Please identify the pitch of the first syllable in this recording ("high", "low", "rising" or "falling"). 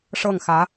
falling